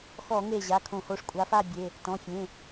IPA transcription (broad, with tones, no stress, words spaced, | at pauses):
xɔ˧˩˧ŋe˧˩ʑa˩˧˩kʰõ˧˩˧ ho˩˧˩ʂkʷʼa˨˦fa˥˨bʲe˩˧˩ | tɔ̃˩˧˩fʲẽ˩˧˩